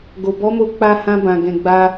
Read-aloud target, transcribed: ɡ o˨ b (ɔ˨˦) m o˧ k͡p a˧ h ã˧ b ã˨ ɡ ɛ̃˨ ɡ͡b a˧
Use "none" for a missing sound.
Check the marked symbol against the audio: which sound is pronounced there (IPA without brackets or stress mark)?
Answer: ɔ˨˦